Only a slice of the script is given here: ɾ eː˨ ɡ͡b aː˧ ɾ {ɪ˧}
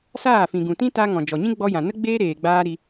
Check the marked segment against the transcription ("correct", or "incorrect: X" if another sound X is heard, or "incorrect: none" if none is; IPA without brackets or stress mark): incorrect: i˧